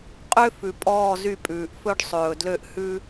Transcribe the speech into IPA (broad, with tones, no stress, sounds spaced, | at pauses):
qʼ ø˦ f ʉ˨ pʼ ɔː˦˨ z y˦˨ pʼ ʉː˨ ʔ f ɵ˦ ɖ sˤ ɵː˨ d l ø˦˨ ʔ h ʉ˦